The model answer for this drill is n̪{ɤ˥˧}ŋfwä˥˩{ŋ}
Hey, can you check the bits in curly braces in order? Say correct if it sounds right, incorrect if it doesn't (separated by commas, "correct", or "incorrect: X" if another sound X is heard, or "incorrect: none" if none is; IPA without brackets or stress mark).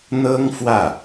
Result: incorrect: ɤ˥, incorrect: none